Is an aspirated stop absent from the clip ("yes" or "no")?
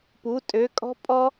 yes